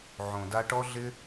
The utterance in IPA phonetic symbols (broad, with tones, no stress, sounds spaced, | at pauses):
ʕ õ˨ d a˧ ʈ ɔ˦ ɮ ɪ˦